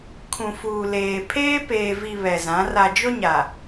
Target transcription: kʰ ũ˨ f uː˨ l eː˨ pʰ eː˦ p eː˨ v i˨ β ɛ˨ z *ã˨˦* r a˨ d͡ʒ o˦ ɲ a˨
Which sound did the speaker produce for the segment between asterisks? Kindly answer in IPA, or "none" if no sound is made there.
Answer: ã˨˦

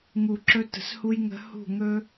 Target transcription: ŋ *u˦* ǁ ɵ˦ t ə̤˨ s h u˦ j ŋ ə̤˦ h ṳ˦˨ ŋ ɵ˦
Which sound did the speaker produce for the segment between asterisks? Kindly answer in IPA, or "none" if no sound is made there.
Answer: u˨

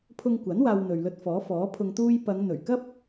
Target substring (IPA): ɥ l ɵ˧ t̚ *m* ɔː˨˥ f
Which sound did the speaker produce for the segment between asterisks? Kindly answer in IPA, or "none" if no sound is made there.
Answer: f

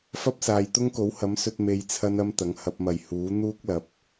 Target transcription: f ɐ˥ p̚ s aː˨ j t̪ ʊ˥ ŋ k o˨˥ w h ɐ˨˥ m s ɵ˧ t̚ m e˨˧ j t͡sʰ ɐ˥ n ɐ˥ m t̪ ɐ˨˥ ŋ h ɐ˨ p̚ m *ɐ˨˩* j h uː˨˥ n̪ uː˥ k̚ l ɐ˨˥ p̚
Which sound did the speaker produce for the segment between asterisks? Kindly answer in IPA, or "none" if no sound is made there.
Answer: ɐ˨˩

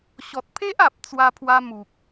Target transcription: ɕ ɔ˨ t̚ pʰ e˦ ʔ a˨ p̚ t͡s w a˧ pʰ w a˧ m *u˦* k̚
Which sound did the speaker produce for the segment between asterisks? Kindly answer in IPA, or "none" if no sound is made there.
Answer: u˨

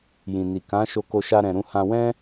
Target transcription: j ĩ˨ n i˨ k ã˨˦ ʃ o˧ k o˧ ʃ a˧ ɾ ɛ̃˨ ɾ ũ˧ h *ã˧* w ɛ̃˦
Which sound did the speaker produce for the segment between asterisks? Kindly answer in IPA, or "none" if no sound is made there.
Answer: ã˧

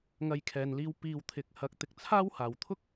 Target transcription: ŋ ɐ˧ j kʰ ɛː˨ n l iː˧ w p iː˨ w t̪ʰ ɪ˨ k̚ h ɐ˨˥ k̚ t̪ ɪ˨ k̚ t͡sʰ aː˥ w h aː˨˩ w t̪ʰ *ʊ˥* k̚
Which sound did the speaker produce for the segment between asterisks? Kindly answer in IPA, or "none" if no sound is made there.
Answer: ʊ˥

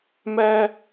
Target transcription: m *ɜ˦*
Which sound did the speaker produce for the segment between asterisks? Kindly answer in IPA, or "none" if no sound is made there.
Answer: ɛ˦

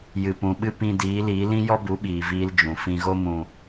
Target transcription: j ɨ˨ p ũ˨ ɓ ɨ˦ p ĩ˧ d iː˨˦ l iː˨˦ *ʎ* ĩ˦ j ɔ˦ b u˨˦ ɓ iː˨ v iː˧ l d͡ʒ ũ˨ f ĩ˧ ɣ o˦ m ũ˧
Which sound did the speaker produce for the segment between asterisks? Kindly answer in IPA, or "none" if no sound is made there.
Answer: l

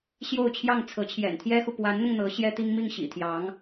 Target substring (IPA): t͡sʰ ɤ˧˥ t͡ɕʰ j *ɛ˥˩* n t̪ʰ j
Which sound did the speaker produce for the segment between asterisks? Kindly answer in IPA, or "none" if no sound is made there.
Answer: ɛ̰˨˩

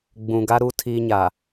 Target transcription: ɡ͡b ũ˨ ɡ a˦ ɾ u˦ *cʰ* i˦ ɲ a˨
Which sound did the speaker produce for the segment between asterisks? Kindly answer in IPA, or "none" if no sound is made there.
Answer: tʰ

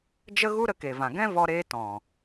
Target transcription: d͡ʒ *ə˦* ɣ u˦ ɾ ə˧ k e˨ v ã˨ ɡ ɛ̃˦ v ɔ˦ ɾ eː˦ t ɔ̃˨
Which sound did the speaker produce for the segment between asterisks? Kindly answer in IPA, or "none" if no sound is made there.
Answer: ə˦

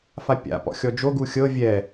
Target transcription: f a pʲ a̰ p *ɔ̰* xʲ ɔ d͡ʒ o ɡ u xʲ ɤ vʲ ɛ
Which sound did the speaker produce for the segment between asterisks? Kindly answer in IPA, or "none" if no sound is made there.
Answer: ɔ̰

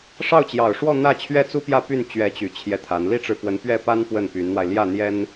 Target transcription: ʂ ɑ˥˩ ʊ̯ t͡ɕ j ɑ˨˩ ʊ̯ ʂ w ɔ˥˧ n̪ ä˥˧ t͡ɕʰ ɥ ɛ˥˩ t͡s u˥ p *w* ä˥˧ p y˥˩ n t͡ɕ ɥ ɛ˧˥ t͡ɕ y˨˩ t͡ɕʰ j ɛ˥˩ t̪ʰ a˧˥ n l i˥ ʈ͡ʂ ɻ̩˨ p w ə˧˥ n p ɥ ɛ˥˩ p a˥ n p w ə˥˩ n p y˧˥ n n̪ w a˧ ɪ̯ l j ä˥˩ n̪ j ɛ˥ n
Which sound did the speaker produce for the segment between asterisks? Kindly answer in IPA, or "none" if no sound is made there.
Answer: j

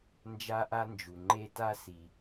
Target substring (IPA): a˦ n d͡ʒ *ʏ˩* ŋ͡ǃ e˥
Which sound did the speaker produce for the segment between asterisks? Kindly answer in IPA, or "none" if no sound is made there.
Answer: u˩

